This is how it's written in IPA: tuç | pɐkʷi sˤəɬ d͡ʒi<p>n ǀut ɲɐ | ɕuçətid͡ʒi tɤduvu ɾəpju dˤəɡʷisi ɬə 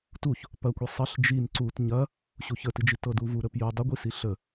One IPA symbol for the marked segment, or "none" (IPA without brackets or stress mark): none